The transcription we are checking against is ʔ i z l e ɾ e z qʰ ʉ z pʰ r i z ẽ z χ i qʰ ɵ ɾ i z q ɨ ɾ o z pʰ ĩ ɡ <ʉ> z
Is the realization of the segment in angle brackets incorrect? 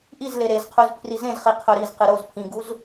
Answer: yes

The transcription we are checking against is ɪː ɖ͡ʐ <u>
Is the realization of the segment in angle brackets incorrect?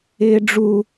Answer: no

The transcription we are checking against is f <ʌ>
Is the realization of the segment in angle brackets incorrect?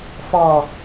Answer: yes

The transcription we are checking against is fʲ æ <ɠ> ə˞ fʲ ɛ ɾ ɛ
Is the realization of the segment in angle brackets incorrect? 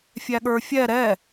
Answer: no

